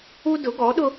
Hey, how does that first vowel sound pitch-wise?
high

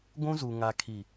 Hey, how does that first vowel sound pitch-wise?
high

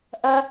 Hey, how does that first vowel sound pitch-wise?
high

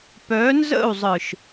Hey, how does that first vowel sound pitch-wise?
rising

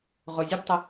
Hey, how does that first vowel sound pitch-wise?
low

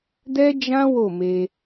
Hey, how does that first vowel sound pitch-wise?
high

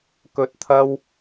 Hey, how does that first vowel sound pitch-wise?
low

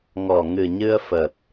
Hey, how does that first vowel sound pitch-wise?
low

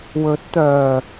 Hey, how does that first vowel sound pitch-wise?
rising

